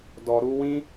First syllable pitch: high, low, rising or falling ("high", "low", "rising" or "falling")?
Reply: low